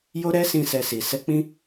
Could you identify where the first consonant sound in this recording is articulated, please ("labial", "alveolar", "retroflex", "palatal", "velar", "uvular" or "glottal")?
palatal